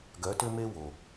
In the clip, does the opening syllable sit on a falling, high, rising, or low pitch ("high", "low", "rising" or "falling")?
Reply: rising